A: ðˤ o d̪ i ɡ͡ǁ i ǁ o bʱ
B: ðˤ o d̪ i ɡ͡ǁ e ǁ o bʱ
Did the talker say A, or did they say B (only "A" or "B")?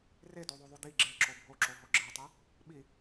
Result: B